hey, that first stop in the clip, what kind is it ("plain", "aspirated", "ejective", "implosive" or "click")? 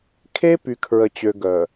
aspirated